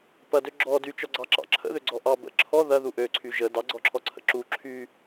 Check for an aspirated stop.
present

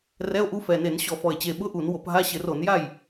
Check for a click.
absent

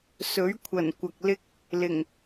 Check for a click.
absent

